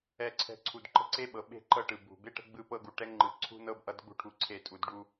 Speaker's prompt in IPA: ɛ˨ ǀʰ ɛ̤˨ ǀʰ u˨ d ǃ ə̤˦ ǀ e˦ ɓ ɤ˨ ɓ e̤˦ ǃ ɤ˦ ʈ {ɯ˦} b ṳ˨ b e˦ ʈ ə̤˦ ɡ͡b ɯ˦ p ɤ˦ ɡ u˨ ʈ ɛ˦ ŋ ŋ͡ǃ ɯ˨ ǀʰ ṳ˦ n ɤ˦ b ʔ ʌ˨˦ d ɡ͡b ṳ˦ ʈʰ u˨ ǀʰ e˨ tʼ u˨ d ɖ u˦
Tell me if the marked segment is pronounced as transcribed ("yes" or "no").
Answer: no